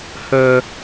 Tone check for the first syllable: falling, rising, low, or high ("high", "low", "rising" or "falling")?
high